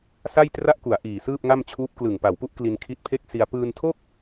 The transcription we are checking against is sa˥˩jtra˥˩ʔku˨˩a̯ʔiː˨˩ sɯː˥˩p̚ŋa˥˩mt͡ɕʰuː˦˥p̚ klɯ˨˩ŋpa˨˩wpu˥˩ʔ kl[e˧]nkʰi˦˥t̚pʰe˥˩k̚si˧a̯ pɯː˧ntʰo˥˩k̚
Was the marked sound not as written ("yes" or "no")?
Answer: yes